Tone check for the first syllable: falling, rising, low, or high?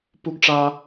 high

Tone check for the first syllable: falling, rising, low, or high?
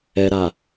low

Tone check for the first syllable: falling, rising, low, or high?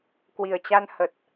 low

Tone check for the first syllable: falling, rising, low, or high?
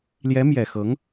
rising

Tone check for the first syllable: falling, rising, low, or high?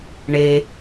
low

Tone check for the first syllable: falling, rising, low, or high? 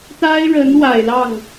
high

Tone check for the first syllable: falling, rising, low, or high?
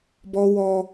high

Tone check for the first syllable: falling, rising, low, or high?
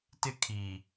high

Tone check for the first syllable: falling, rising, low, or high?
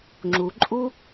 low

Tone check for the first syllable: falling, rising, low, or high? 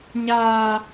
high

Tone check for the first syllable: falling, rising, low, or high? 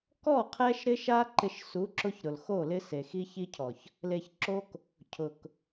falling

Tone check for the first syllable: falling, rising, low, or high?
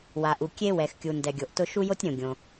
low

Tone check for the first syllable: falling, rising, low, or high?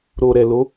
low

